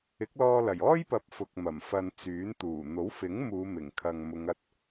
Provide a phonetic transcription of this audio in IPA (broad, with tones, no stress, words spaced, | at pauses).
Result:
ɪ˨˥k̚lɔː˧lɐ˨˩j ɔː˥jpɐ˨˥p̚ fʊ˨k̚ mɐ˨˩m fɐ˨n t͡syː˨˥n t̪uː˨˩ n̪o˨˥wfɪ˨˥ŋ muː˨˧mɪ˨˩ŋkʰɐ˨ŋmʊ˨˧ŋ ɐ˧t̚